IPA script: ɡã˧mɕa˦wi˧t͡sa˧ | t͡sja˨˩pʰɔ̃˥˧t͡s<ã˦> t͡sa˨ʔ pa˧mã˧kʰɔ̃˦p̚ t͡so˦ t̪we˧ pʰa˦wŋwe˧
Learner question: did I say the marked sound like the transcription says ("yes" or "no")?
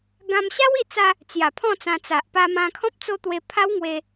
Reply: no